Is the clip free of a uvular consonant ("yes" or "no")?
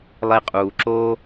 no